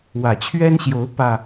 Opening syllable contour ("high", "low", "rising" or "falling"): low